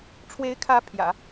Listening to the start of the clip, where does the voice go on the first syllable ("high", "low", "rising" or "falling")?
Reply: rising